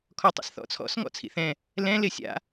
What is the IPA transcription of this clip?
kʰ ɔ tˤ ḭ s θ ɔ̰ t͡sʰ ɔ̰ s ŋ ɔ̰ t͡sʰ ḭ θ ɛ̃ | l ɛ̃ l ɪ sʲ a̰

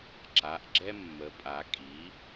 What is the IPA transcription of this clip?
ǁ a˩˧˩ ʔ ɡ͡ǁ ɛ˦ mː ə˩˧ pʼ a˩˧ kʼ i˩˥

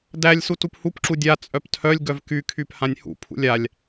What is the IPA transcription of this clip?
d æ lʲ s u t u p h u p ǁ u dʲ a t͡sʼ œ p tʰ œ lʲ ɡ œ v k y kʰ y p h ã nʲ h ṵ pʰ ṵ lʲ a lʲ

